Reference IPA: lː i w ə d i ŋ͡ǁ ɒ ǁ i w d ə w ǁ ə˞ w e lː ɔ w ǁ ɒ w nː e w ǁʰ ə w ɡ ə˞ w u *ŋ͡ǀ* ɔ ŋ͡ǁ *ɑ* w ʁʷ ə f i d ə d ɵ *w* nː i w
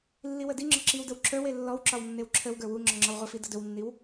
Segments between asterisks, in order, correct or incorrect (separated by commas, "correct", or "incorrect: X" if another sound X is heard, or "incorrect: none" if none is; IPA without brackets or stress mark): incorrect: ŋ͡ǁ, incorrect: ɒ, correct